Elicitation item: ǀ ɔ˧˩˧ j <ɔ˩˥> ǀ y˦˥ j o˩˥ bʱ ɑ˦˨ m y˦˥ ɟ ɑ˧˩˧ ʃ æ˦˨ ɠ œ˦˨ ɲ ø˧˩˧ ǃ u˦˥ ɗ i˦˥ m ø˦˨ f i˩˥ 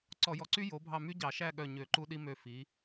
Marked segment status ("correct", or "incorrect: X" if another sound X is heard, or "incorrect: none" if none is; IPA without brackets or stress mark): correct